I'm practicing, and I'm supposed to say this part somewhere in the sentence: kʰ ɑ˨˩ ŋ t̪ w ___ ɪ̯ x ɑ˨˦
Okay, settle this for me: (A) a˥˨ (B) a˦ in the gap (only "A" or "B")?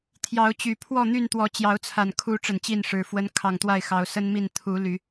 A